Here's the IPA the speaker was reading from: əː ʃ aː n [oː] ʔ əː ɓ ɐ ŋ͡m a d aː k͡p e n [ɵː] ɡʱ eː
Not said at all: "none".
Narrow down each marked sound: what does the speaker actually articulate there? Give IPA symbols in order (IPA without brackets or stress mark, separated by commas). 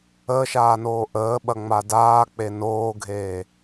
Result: oː, oː